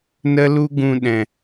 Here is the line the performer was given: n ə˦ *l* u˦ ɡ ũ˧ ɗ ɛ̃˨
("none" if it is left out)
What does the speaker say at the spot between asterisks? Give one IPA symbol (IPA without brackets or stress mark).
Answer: l